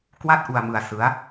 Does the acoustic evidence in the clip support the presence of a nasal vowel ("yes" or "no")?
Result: no